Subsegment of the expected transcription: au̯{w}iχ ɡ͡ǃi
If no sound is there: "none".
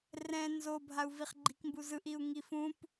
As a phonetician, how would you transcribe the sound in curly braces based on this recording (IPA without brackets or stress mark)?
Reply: v